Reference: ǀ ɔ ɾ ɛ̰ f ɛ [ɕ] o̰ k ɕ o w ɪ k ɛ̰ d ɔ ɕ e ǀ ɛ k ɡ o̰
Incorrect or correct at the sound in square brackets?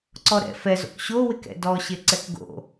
incorrect: z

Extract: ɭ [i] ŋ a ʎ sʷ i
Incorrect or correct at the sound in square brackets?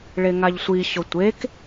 incorrect: e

